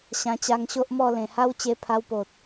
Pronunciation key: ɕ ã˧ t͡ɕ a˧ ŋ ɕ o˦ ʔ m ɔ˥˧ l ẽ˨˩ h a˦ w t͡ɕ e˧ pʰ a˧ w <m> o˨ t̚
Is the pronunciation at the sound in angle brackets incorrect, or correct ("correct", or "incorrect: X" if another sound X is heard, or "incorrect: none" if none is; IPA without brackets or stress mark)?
incorrect: p